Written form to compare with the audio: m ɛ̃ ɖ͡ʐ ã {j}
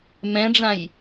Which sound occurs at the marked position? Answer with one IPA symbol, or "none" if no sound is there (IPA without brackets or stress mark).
j